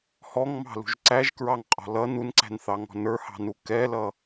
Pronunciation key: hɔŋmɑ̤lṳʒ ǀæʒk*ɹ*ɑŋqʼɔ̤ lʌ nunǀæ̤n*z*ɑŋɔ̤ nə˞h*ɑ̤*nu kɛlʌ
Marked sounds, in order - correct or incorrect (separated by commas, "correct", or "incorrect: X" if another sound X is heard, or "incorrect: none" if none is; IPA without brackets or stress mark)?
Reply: correct, incorrect: θ, correct